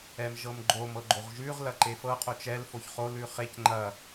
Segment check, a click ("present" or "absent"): present